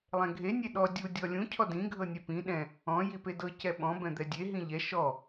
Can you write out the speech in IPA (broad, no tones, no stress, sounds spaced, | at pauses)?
lˠ ɛ̃ ɡʱ e nʲ e ɗ ɔ dʲ u dʲ ɔ lʲ ũ cʰ ɔ d ĩ ɡʱ ɤ nʲ ɛ p ĩ ɗ ɛ̃ | ɔ̃ j i p e d ɤ c ɛ ɓ ɔ̃ b ɛ̃ d̪ ɛ dʲ e ɦ ĩ ʎ ɛ ʃ ɔ